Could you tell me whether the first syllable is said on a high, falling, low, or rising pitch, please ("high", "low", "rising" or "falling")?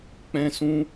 high